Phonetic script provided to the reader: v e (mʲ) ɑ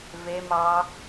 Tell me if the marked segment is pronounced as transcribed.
no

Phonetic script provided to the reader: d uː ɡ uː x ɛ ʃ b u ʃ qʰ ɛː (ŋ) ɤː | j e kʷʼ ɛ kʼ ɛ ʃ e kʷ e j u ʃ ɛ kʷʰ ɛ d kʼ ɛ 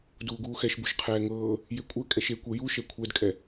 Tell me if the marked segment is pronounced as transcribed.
yes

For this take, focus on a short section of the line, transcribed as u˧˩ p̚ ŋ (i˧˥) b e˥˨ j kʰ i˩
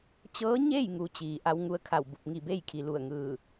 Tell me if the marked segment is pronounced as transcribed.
no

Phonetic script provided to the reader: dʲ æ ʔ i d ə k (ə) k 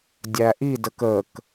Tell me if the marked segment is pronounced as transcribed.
yes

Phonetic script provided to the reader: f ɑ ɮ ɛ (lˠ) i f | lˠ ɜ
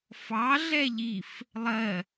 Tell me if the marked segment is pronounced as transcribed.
no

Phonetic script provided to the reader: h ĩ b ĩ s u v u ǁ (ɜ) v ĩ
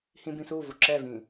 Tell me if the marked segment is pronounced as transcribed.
no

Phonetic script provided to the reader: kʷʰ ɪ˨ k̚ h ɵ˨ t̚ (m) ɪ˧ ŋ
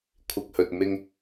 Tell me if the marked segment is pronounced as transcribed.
yes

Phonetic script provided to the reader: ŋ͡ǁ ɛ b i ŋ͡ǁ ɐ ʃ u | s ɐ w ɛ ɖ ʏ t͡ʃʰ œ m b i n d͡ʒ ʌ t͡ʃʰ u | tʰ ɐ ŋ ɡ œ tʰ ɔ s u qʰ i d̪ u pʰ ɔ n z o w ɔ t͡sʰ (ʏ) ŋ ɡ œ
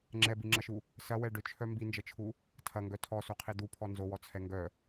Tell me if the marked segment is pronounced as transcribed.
no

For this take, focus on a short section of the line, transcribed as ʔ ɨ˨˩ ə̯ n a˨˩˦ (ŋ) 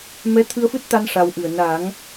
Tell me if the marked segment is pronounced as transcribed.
yes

